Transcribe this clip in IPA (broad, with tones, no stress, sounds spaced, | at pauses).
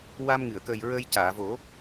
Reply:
w a˧ m ŋ ɨ˨˩˨ ə̯ k əː˨˩ j ɹ ə˧ j c aː˨˩˨ v o˨˩˦